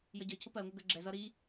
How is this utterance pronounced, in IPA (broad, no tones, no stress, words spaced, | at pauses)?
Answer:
jʌɟʌ cʰʊpɜŋʷʌ ɡɜɡ͡ǁɛ zʌɾi